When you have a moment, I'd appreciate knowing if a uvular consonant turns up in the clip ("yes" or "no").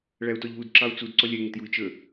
no